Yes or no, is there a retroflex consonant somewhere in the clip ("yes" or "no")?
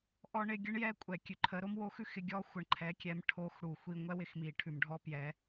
yes